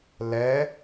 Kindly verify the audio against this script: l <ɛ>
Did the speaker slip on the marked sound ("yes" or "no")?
no